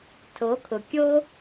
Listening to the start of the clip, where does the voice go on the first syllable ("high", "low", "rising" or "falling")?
rising